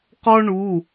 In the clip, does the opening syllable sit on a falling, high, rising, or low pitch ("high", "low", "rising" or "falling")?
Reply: high